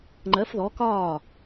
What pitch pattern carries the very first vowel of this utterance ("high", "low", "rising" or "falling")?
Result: rising